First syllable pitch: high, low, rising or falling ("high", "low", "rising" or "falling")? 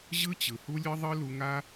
high